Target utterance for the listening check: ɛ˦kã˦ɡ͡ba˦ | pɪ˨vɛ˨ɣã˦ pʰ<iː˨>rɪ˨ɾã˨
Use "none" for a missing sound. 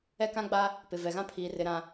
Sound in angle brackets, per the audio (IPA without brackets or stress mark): iː˨